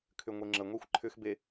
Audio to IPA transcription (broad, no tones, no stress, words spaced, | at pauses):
kʰʏŋʷeŋ͡ǁəŋʷexʷ ǃʰʏxbe